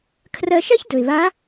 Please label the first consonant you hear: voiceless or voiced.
voiceless